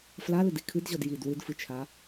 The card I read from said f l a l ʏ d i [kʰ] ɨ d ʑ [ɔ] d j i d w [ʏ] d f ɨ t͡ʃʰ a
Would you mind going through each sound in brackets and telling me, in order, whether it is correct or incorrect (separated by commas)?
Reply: correct, correct, incorrect